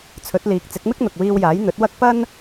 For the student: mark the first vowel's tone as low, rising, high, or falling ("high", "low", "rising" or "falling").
rising